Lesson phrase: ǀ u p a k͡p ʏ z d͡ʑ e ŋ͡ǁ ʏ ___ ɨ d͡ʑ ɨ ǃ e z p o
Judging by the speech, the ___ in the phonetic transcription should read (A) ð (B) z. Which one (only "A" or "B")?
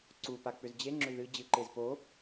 A